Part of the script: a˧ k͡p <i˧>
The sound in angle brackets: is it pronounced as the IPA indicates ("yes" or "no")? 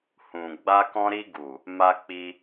yes